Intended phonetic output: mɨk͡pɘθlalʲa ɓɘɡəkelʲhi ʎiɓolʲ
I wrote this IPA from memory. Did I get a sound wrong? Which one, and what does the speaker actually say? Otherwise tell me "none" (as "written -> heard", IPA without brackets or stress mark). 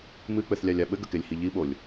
l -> lʲ